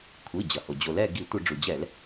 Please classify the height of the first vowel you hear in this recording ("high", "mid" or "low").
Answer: high